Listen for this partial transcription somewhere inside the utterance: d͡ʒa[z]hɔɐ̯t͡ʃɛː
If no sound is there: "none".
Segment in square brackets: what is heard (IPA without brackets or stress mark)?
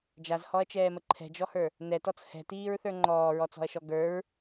z